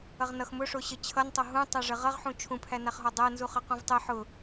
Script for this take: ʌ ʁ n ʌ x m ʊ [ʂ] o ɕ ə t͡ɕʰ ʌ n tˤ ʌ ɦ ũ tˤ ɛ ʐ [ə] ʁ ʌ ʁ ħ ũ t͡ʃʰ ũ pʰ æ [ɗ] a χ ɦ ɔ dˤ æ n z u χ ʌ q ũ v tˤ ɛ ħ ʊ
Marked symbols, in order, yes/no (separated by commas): yes, yes, no